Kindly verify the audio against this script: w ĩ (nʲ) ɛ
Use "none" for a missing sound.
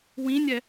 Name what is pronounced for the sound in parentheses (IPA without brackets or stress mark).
nʲ